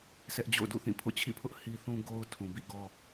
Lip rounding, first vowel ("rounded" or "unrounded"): unrounded